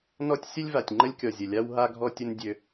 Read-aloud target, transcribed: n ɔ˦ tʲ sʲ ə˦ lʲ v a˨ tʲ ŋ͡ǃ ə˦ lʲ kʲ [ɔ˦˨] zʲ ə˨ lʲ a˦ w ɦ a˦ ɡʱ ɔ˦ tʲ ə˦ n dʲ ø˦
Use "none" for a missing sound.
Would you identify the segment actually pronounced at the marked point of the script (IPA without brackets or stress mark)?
ɔ˨